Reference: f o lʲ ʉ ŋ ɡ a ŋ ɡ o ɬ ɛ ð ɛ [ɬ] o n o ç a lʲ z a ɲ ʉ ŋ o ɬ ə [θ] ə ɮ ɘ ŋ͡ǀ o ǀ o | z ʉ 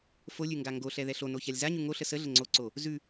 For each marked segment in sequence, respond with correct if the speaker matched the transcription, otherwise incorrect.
correct, incorrect

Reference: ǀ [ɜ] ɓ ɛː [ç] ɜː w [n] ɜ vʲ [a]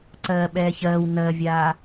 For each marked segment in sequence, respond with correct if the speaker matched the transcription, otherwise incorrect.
incorrect, correct, correct, incorrect

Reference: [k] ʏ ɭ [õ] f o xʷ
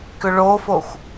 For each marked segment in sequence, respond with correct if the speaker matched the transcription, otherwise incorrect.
correct, incorrect

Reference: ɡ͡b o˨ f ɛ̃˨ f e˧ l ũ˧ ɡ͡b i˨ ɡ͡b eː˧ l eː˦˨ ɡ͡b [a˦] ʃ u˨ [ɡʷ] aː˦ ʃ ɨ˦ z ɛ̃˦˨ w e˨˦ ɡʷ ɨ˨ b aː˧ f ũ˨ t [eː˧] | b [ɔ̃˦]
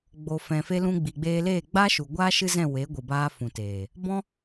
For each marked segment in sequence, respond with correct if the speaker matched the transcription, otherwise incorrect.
correct, correct, incorrect, correct

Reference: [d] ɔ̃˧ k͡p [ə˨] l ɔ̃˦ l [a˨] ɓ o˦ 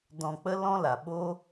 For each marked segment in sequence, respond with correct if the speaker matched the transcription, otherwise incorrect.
correct, incorrect, correct

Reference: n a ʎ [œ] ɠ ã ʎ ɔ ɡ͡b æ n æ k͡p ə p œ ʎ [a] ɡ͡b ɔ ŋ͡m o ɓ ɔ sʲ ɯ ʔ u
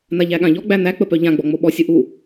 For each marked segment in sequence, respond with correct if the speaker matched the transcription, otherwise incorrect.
incorrect, incorrect

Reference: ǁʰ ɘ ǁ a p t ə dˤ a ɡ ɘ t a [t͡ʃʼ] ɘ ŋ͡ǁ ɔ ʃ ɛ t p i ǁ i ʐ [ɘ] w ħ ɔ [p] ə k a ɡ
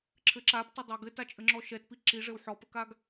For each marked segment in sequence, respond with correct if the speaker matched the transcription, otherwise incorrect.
correct, correct, correct

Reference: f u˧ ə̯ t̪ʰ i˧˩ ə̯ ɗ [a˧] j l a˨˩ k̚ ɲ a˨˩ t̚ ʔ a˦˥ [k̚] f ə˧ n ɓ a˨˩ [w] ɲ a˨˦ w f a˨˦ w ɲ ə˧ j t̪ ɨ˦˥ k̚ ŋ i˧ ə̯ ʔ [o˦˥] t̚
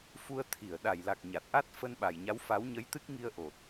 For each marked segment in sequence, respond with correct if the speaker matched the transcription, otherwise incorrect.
incorrect, incorrect, incorrect, incorrect

